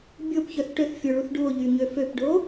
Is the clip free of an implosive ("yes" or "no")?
yes